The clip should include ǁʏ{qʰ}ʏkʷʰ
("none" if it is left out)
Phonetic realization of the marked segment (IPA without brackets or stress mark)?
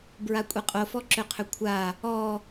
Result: qʰ